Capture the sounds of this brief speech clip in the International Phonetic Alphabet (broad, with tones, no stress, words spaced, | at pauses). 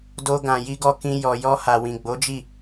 do˧ ɡã˨ji˧ɡɔ˧ kĩ˧ jɔ˨jɔ˧ha˨ wĩ˨ɡ͡bo˨˦ d͡ʒi˦˨